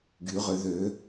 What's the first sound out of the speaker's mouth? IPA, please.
ɡ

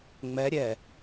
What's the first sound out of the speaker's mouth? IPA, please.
ŋ͡m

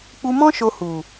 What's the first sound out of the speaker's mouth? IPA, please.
k͡p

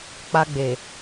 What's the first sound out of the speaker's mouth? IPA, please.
k͡p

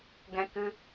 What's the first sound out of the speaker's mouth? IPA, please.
ɡ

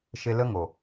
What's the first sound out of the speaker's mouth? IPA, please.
ʃ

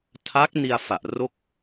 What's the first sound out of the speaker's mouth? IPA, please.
tʰ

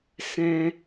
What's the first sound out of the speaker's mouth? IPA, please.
s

